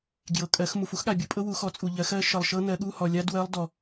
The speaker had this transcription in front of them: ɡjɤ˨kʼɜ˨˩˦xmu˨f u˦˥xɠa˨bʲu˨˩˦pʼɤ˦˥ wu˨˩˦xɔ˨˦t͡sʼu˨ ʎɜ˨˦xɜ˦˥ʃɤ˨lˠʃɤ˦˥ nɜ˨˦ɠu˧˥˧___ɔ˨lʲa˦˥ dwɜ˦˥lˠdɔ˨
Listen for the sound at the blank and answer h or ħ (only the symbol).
h